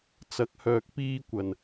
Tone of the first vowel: rising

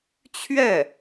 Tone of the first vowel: falling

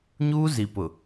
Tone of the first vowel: high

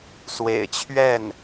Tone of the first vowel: low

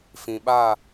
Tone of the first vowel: low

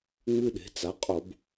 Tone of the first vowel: high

